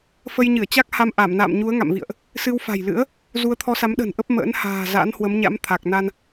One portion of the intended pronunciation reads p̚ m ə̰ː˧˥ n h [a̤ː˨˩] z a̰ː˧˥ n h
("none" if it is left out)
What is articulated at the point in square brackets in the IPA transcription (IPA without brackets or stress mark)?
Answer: a̤ː˨˩